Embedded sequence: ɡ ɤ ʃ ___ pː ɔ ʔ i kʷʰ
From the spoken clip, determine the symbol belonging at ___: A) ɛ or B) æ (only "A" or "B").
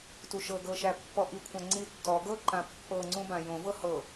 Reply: B